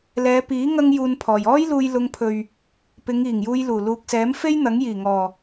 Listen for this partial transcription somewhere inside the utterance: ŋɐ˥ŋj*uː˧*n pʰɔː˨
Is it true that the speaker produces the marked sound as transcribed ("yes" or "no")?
yes